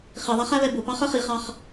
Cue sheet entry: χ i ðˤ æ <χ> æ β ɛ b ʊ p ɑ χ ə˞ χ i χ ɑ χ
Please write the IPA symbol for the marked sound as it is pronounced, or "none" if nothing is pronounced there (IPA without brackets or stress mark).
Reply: χ